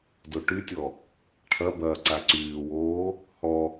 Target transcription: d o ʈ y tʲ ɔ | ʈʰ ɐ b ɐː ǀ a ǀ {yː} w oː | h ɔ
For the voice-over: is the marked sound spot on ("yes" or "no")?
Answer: yes